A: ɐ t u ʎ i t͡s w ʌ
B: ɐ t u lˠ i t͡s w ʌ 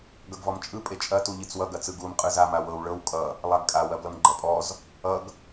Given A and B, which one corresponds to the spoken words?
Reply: A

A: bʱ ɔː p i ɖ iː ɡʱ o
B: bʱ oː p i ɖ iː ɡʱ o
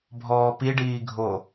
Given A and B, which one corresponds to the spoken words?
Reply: A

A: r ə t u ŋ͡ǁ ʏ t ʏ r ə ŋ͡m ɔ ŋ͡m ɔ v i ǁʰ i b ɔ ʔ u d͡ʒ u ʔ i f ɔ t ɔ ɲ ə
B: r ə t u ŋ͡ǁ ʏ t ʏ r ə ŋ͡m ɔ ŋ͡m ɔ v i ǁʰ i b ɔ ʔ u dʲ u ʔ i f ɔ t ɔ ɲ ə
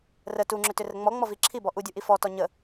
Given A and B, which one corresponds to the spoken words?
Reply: B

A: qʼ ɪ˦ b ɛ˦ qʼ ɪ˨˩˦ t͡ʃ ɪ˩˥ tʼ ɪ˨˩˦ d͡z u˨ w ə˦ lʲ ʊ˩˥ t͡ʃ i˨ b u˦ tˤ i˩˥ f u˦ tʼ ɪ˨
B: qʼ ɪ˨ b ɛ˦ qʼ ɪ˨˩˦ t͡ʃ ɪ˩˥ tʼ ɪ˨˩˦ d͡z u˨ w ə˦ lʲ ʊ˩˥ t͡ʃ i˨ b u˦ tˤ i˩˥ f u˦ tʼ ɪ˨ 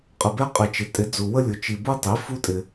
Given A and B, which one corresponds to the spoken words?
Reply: B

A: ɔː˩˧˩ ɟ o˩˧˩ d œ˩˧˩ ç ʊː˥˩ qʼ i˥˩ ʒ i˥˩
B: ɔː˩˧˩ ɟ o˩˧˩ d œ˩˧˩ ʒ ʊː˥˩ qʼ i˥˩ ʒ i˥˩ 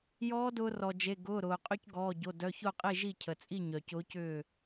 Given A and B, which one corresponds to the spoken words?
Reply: A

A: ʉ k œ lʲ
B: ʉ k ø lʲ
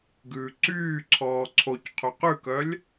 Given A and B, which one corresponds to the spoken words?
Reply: A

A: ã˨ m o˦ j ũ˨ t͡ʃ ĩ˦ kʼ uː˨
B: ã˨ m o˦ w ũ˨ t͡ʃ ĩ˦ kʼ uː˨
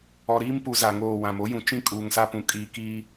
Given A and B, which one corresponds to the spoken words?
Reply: A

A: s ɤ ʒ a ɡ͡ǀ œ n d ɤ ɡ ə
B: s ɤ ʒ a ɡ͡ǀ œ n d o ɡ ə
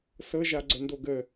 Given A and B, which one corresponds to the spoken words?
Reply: B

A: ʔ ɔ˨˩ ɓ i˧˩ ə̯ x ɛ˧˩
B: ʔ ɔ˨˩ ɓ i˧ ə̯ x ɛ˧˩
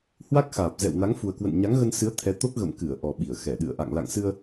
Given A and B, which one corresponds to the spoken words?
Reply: A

